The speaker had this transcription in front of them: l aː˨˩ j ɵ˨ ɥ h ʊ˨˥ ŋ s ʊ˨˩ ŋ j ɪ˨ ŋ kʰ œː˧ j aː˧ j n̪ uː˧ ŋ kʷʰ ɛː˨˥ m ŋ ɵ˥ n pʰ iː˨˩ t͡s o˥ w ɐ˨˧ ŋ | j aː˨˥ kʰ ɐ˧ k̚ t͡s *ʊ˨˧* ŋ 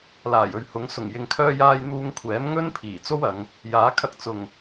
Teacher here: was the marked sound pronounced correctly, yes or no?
no